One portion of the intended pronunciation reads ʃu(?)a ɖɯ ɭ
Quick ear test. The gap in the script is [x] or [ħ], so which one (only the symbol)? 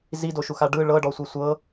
x